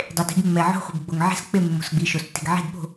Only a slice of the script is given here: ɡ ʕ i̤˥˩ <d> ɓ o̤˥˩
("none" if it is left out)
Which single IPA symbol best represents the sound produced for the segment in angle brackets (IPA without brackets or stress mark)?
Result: d